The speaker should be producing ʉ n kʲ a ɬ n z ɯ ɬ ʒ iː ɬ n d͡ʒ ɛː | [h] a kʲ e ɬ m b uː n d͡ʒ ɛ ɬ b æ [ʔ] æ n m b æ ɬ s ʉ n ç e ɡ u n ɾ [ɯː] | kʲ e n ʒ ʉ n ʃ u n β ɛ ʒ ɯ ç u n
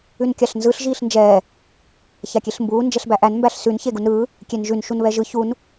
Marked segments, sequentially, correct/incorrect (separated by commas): incorrect, correct, correct